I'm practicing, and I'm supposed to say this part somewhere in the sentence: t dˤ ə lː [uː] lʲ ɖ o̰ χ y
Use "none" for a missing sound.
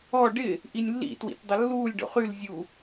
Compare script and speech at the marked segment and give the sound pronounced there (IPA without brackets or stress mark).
uː